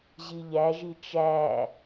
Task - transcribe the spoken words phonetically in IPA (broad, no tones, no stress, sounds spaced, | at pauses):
ʑ i ʎ æ ʒ i t͡ʃ æ